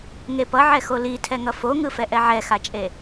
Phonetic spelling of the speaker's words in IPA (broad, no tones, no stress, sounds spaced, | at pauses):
ŋ e p ʌ ʕ ɛ x o l i tʰ ɛ ŋ ʌ f o ŋ ɯ f ɛ ʔ ɛ ʕ ɛ x a t͡ʃʼ e